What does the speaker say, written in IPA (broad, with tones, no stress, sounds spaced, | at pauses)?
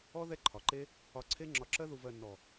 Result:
ɔ˦ ð ɛ˦ ǃʰ ɒ˨ ǃ e˦ | ɒ˧ ǀʰ e˦ ŋ͡ǁ ɒ˧ ǁ ɜ˦ ð u˧ v ɜ˧ nː ɔ˨